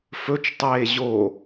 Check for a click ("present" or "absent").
absent